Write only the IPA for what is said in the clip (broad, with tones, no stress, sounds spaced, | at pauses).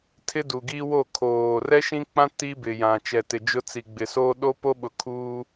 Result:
tʰ ɪ˦ d u˨ ɡ i˦ w o˦˨ kʰ oː˨ r ɛ˦ ʃ ĩ˦ k͡p ã˦ t i˦ b ɪ˨ j ã˨ t͡ʃ ɛ˨ t ɪ˨ d͡ʒ ʊ˦ t͡s i˨ ɡ͡b ɪ˨ s oː˦ ɗ o˦ p o˦ ɓ ʊ˨ kʰ uː˦